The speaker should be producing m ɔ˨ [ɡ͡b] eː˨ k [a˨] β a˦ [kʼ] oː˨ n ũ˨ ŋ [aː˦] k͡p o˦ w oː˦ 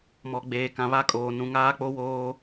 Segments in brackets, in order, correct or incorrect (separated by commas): correct, incorrect, correct, correct